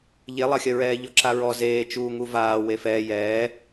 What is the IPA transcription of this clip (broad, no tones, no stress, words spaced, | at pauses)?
ʎelˠɐxʲɐɹɛː ʎɔǁaɹɔ zeːt͡ʃuː ŋuvaː wefɛː jɛː